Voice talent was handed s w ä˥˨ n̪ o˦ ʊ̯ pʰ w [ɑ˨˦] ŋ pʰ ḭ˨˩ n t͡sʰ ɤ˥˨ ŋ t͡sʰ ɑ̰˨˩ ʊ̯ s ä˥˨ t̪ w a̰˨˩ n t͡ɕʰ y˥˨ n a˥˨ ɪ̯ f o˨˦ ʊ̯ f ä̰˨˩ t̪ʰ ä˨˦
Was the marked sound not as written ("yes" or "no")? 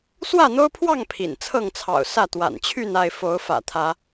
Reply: yes